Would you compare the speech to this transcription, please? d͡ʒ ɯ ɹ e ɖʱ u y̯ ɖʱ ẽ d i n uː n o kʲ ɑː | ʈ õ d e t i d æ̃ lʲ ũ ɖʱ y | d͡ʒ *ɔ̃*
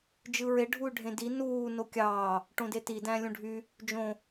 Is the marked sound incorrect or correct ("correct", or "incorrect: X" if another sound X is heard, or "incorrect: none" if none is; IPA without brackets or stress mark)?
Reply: incorrect: õ